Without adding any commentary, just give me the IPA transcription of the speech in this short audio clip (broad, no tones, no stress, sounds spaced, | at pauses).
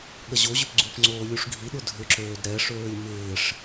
ɠ ɐ ʑ o ʑ ʏ p ɡ͡ǀ u p ŋ͡ǀ oː lʲ u ʂ ɡʱ i ɗ ʊ dʱ ʏ ǁ øː d ɾ ɛ ʂ øː lʲ m ɪː ʂ